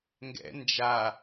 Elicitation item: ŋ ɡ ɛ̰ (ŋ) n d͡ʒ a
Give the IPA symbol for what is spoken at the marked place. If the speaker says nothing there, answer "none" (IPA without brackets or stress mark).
none